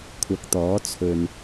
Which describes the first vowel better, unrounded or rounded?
unrounded